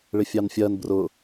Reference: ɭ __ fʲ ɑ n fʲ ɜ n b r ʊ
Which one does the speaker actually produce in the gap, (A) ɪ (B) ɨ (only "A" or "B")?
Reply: A